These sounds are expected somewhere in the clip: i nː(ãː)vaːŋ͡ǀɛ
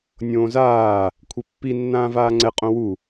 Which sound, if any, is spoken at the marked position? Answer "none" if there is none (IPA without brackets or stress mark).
ãː